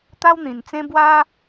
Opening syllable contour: high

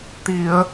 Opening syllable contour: low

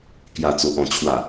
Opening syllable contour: low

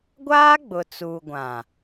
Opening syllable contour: high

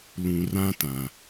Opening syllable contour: low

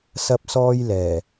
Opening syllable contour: high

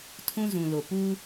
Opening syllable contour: high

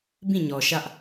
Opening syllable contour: falling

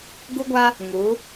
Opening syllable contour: high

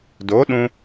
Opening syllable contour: rising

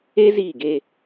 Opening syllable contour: high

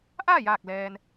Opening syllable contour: falling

